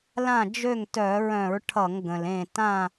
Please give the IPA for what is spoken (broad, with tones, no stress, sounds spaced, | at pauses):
l ã˥˨ d͡ʒ ø˥˨ ŋ t œ˧˩˧ ɹ œ̃˧˩˧ ɹ ʈʰ ʌ˧˩˧ ŋ ɡ ə̃˩ l ẽ˧˩ t ã˥˨